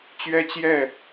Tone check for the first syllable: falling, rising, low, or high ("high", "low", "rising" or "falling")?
high